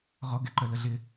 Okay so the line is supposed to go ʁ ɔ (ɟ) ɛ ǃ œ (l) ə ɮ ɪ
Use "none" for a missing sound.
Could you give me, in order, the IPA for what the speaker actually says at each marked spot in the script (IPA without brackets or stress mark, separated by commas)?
ɡ, l